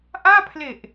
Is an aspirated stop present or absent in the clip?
present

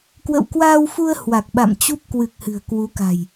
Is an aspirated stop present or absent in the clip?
absent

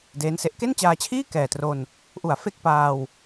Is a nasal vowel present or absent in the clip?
absent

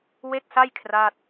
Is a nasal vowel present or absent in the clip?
absent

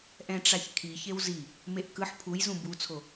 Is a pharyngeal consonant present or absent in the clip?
present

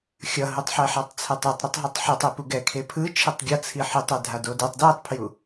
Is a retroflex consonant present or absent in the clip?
absent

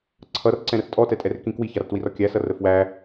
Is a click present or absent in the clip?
present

